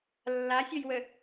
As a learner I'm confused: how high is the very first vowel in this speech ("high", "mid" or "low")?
low